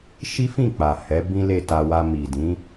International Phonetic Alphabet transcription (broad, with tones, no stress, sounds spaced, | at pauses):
ʃ i˦ f ĩ˦˨ k͡p a˨ h ɛ˨˦ b ĩ˦ l e˦˨ t a˧ w a˧ m i˨ d ĩ˨˦